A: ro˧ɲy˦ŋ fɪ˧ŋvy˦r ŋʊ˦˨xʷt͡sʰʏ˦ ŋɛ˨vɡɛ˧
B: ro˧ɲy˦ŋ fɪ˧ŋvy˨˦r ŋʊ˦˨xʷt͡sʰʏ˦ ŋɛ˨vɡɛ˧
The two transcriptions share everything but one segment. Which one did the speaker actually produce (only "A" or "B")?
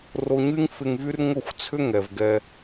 A